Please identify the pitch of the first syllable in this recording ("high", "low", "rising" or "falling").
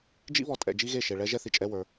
high